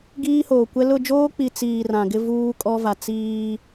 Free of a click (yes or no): yes